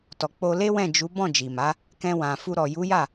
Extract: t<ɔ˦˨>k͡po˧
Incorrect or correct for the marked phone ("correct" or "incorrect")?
incorrect